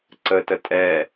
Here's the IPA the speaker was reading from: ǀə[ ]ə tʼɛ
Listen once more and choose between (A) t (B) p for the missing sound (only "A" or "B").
A